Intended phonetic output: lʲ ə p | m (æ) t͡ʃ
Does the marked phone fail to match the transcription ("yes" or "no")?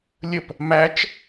no